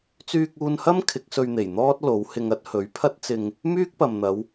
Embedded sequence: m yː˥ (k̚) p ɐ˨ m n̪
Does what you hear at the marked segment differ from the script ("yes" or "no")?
no